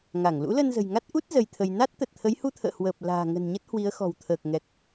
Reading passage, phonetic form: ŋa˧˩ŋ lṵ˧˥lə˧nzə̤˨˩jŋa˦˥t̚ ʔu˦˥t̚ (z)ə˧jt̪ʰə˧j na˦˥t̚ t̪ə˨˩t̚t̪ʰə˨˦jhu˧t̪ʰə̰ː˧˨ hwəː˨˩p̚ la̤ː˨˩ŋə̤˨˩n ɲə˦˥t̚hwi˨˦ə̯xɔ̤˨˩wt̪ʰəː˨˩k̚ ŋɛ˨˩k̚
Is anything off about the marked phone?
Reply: no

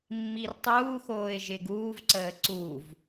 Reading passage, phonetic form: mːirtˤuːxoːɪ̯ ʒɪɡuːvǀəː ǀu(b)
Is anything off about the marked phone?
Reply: yes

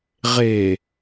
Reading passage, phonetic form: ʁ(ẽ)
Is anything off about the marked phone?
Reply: yes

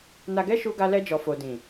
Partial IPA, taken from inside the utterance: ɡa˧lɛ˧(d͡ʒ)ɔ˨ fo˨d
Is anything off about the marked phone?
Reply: no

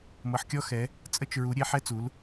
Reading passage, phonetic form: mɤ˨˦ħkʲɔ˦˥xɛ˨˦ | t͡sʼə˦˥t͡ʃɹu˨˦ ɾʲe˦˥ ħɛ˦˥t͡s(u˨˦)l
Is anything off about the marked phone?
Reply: no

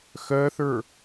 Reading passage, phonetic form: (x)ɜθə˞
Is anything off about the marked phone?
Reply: no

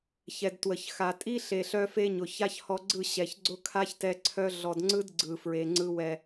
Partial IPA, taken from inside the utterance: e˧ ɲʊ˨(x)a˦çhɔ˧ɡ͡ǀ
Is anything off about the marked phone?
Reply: yes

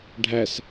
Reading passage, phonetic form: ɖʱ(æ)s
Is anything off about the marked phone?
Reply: no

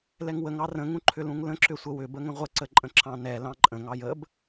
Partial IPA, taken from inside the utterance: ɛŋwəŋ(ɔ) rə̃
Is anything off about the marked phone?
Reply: yes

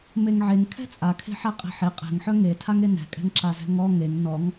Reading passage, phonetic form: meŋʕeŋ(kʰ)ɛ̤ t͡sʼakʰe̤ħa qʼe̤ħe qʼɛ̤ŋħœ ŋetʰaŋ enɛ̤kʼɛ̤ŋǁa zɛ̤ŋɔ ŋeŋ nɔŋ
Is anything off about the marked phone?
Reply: no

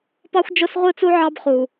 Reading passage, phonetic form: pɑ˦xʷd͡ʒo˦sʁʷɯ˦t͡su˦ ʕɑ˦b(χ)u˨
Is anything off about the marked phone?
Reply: no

